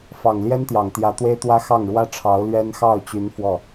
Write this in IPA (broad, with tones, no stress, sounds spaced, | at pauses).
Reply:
f ɑ˨˩ ŋ l j ɛ˥ n t̪ j ɑ˨˩ ŋ t̪ j ä˧˥ t̪ w e˥ ɪ̯ t̪ w ä˥ x ɑ˥˩ ŋ ɻ w ä˥ ʈ͡ʂʰ ɑ˧˥ ʊ̯ l ɥ ɛ˥ n x ɑ˥˩ ʊ̯ t͡ɕ y˧˥ n f w ɔ˥˩